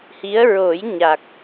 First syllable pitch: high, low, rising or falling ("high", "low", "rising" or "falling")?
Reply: rising